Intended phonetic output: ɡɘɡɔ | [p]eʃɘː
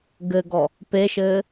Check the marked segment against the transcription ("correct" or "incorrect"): correct